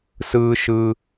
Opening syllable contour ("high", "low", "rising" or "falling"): high